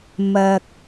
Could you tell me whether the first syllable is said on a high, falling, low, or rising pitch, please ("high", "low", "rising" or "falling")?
low